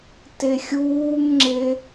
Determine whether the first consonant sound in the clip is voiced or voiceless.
voiceless